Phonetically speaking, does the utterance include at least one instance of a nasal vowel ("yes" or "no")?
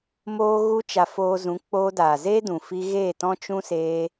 yes